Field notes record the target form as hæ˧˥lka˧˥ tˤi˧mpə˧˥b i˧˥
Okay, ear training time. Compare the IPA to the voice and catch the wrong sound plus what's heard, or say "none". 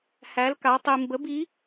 p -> b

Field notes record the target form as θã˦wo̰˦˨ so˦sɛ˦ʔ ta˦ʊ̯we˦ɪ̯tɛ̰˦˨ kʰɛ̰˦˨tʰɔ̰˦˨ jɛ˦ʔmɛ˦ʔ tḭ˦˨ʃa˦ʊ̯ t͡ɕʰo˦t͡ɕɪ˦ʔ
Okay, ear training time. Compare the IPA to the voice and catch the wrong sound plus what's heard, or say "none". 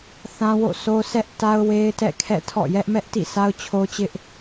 ʃ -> s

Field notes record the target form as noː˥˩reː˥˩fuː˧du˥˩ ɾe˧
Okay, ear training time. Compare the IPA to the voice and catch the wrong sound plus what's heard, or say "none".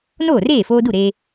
uː˧ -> oː˧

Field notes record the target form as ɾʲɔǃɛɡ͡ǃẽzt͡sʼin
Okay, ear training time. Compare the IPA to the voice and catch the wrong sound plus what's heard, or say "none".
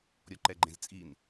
none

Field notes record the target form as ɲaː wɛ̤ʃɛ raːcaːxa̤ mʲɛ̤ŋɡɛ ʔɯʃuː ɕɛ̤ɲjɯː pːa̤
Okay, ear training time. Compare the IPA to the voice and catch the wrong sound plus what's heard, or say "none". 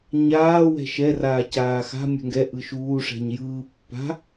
ɕ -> ʂ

